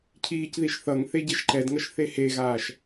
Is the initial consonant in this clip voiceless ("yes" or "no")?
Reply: yes